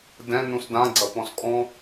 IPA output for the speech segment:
dɛ̃ nũsdã ɡ͡ǀɐpɔ̃skʼɔ̃

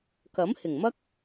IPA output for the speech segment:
kɐ˨˥mhɪ˨˩ŋmɐ˥k̚

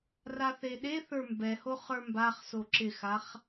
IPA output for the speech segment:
raθeɗeθə˞ mbɛhoχ ə˞mbaχso ǁɪxaχ

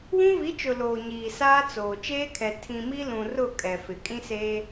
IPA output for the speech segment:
wũ˦vi˨˦t͡ʃʊ˨ loː˨ɲiː˨ saː˦t͡soː˨ t͡ʃeː˦kʰɛ˨ tʰĩ˨mi˦lũ˨rʊ˦˨ kʼɛ˨fɪ˨ kʼĩ˦seː˦

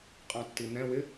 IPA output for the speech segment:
qʼɑ̃tːin̪ɛ̃ wɪ

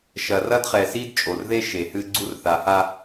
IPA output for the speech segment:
ʃɐ˨rɐ˦dχɛ˨si˦d t͡ʃʼo˨rðe˦ ʃe˨hɨ˦ɡ͡ǀu˦r θa˨ha˦

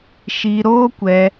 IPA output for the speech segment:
ʃiː˧ɾoː˦kʷɛ˧

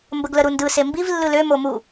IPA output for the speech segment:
mbəɡləɾundɯ sembiv lːɯlø momu

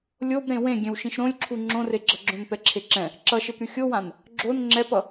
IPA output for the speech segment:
lʲob ɾẽwẽ ɡʲɛ̃wʃĩʃɾõlʲǁʰu ŋ͡ǁõreɡ͡ǁʌɡ͡ǁõn pɛǁʰeǁɛ̃ | ǁʌʃep ɾʲuxʲowãn | ɡ͡ǁon ŋ͡ǁɛpʌ

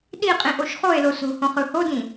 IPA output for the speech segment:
ɗiqʼĩʔoʃ χoe̯lo so̤hõχɯ hodĩ

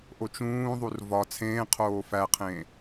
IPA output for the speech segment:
ʔot͡ʃũːðˤur vɒ t͡sʰẽːqʰoː fæqʰẽː

